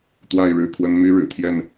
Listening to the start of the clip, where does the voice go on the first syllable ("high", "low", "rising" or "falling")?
falling